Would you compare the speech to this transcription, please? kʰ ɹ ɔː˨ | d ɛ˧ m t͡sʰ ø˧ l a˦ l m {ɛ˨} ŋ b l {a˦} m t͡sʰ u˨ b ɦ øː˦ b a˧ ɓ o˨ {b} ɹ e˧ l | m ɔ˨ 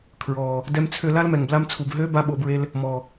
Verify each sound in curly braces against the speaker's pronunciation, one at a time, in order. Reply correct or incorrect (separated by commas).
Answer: correct, incorrect, correct